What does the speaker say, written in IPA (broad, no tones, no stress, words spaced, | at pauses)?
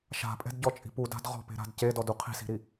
ʃa̤pʼɛ̤dɟɔt͡ʃʼi̤ puda̤d ʁɔ̤pe̤ɾa̤d cedɔdu qʰi̤si̤ɾi